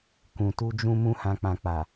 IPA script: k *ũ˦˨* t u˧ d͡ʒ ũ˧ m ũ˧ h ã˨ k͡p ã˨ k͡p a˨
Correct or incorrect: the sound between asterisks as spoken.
incorrect: ũ˨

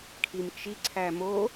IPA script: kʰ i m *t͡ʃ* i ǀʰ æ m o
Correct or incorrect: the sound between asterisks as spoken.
correct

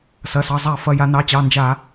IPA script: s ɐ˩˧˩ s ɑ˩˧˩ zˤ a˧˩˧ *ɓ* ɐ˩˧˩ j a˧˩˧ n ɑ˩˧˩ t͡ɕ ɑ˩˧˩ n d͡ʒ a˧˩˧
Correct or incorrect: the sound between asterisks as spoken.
incorrect: f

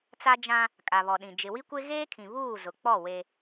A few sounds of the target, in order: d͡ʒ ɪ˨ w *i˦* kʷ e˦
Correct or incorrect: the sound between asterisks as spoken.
correct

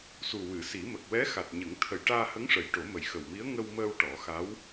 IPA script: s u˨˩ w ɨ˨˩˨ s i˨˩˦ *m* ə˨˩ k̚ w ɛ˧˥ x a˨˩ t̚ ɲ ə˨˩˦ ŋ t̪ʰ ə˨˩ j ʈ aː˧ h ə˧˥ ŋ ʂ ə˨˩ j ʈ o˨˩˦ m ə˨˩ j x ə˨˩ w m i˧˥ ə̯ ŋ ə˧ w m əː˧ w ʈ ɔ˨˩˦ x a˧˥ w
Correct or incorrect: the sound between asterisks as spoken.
correct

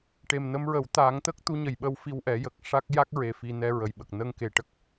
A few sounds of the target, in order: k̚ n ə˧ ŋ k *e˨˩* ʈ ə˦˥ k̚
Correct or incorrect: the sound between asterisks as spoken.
correct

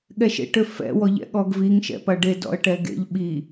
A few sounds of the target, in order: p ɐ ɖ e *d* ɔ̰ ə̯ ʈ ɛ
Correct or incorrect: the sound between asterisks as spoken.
correct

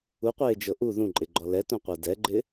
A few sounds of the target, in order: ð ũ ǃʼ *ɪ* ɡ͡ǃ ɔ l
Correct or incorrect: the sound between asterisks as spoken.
correct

